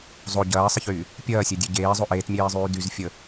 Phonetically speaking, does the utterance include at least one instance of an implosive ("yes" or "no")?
no